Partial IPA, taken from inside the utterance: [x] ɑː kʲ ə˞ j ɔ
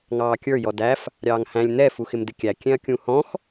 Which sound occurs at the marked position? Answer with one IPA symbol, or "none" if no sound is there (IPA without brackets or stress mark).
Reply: ŋ